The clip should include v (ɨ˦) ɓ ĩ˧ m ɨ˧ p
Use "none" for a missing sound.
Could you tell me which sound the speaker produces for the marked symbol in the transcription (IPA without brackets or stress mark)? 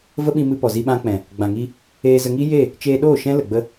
ə˦